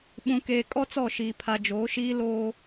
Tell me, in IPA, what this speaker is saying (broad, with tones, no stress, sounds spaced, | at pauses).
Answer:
ɓ ũ˨ k eː˨ kʼ ɔ˦ t͡s ɔ˦˨ ʃ iː˨ pʰ a˨ d͡ʒ oː˨˦ ʃ iː˦ l oː˦